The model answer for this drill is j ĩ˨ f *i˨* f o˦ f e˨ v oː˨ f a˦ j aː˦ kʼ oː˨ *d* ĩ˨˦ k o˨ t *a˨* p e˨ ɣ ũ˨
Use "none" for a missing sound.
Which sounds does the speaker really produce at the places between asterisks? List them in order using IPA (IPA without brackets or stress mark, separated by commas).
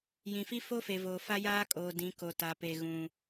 i˦, d, a˨